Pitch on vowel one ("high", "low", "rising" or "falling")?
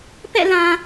falling